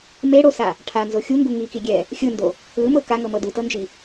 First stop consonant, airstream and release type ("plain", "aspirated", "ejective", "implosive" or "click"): aspirated